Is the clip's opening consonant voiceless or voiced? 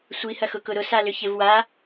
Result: voiceless